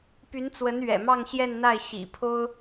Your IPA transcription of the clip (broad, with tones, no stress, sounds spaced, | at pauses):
p y˧˥ n t͡s w ə˧˥ n ɥ ɛ̰˨˩ m ɑ˥˧ ŋ ɕ j ɛ˥˧ n n̪ a˥˩ ɪ̯ ɕ ḭ˨˩ pʰ o˥ ʊ̯